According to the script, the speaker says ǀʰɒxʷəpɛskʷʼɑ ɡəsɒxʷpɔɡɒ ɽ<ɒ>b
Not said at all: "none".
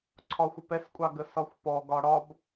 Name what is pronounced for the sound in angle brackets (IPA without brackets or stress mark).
ɒ